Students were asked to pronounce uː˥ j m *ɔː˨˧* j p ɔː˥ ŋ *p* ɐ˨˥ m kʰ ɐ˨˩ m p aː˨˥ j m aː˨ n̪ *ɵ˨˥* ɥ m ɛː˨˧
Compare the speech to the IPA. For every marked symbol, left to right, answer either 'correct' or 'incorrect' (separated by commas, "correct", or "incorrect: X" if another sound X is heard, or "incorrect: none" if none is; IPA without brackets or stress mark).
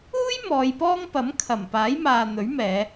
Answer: correct, correct, correct